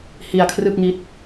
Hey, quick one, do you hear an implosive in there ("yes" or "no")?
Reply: no